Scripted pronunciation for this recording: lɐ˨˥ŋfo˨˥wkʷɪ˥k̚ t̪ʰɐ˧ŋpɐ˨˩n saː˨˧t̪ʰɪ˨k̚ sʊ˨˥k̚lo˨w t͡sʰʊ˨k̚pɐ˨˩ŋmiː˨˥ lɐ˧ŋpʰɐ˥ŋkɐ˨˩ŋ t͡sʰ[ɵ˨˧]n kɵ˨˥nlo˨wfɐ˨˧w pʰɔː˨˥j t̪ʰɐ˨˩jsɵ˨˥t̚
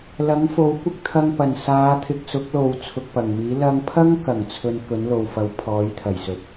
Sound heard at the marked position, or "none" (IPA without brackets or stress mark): ɵ˧